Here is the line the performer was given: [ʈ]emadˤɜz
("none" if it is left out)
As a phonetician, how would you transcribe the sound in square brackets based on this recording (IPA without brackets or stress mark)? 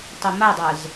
tˤ